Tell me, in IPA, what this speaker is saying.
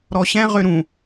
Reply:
ɾ ɔ ɕ ɛ̃ ʁ ø ɾ ũ

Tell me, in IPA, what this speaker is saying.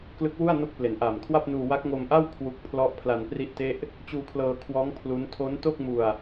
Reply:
k l ɯ˦˥ k̚ w u˥˩ a̯ n o˦˥ k̚ p l e˩˦ n ʔ aː˨˩ m kʰ w a˥˩ p̚ n uː˧ w a˦˥ k̚ ŋ o˧ m ʔ a˥˩ w kʰ w u˦˥ k̚ pʰ l ɔ˥˩ ʔ pʰ l a˧ n p r i˥˩ ʔ t e˥˩ ʔ | t͡ɕ uː˧ kʰ l ɤː˧ kʰ w ɔː˦˥ ŋ pʰ l u˦˥ n tʰ o˦˥ n t o˥˩ k̚ m u˧ a̯

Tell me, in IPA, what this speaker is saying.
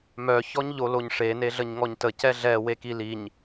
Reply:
m œ ç ɔ ɲ ʎ o l o ɲ ʂ e n e ɮ ə ɲ ŋ ɔ ɲ t ə c ɛ ɮ ɛ w e k i l i ɲ

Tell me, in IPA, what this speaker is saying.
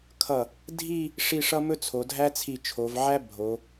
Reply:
kʰ ʌ˧˩ | dʱ i˥˧ | ʂ i˥˧ ʂ ʌ˥ m ɵ˥ t͡sʰ o˩˧ dʱ æ˥ t͡sʰ i˧˩ t͡ʃʰ o˩˧ v ʕ æ˥ bʱ o˩˧

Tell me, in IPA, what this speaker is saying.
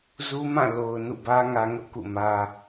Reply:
z u˦ m ã˦˨ l o˨ ʊ̯ n ṵ˦˨ b ä˦ ŋ ä˦ ŋ ʊ˦ ʔ k ṵ˦˨ m ä˦

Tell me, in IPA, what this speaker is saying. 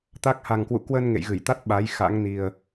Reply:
t̪ a˦˥ k̚ h a˨˩ ŋ k w ṵ˧˨ k w əː˧ n ŋ ḛ˧˨ j ɣ ɨ˧˩ j t̪ a˦˥ t̚ ɓ a˨˦ j x a̰˧˥ ŋ n i˨˩ ə̯

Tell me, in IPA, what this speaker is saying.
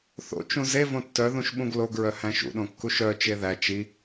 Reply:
θ o̰ t͡ʃ ũ z e v õ tː œ ð ũ ʃ ɓ ũ ɡ l o ɡ ɹ œ h æ̃ ʃ ṵ ɗ õ kː u ʃ œ t͡ʃ e ð æ t͡ʃ i

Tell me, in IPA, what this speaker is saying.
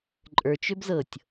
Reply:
ǃʼ ə˞ t͡ʃ ø b z ɤ tʲ

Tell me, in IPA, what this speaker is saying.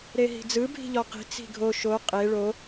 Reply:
ɾ e ɦ i̤ d͡z ɯ bʱ i̤ ʎ ɔ q i̤ t͡s i̤ ɡʱ o ʃ o qʼ e ɭ o

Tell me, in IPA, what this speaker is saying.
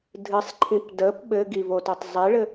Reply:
dʱ ɨ sˤ ǃʰ ĩ p d ə p ɓ ɘ ɡ i v o t o tˤ zˤ i ɭ ɘ

